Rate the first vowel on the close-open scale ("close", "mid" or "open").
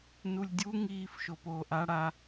close